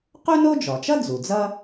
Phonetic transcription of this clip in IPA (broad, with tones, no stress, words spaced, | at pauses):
qu˥no˥d͡ʒɔ˩t͡ʃʌ˥ d͡zu˩d͡zʌ˥